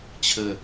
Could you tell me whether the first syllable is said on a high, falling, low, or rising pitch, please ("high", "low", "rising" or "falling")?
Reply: low